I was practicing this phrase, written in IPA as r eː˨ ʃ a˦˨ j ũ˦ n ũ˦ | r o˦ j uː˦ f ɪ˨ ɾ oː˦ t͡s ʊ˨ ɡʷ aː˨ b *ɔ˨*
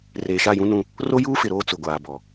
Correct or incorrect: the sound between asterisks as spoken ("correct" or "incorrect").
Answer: correct